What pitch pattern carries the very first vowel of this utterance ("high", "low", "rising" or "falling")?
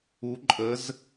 rising